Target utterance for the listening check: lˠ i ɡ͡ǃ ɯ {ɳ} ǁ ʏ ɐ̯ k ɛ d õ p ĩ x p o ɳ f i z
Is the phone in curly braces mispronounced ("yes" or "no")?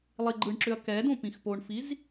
no